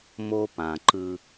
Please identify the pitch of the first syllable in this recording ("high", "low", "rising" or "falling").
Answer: high